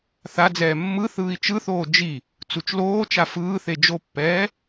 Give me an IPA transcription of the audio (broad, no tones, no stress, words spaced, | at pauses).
θad͡zɛː mːɯ θɯːi̯t͡ʃɯθoː d͡ʒi | t͡sut͡ʃloːt͡ʃa fɯːθe d͡ʒopːɛː